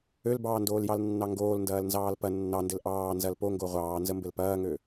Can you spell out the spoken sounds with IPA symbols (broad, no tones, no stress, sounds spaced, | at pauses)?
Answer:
ø l b ɑː n d oː l j ɑ l nː ɑ ŋ ɡ oː l n d ɐː l n z ɑː l p ɐ nː ɑ n d ɘ l ʔ ɑː n z ɐ l p o ŋ ɡ o ʁʷ ɑː n z ə m b ɘ l p ɐː ŋ ø